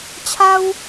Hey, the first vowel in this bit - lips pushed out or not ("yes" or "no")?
no